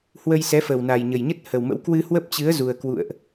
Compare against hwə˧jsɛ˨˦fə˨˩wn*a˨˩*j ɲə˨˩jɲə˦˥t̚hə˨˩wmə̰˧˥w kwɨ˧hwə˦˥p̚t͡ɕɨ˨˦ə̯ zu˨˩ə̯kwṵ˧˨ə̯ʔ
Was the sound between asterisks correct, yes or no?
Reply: yes